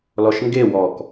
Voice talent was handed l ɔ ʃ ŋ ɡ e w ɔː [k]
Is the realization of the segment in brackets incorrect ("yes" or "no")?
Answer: no